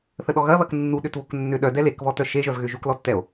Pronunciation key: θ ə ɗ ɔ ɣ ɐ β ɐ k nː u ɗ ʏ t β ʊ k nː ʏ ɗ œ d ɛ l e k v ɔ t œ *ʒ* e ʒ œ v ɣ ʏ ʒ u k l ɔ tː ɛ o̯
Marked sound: incorrect: ʃ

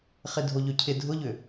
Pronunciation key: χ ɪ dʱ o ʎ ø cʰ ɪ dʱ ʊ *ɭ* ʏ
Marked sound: incorrect: ʎ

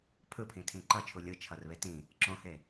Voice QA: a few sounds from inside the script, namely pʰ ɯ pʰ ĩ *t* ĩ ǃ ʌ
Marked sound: incorrect: tʰ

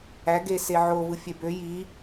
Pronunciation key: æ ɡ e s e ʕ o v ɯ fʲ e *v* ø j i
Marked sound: incorrect: b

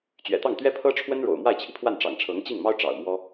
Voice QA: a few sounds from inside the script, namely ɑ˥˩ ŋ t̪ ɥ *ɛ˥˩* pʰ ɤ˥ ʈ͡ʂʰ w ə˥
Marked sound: incorrect: ɛ˥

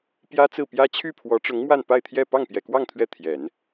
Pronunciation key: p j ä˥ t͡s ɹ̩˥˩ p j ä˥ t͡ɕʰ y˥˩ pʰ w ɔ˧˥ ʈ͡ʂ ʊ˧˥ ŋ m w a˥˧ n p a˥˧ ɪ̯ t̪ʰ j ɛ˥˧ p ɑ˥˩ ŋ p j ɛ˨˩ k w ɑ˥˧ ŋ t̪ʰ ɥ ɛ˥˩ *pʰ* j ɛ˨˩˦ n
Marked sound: incorrect: t̪ʰ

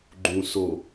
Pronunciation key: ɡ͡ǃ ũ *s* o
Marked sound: correct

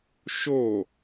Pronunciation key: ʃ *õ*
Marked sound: incorrect: o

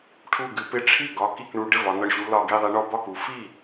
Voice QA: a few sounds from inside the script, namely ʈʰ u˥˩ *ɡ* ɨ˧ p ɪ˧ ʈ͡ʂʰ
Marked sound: correct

